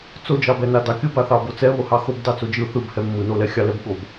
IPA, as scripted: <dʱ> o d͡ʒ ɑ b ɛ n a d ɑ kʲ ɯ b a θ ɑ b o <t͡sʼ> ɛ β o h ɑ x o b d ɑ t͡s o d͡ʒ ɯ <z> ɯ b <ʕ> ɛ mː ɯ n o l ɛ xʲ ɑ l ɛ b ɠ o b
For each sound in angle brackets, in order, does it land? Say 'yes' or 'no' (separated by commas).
no, no, no, no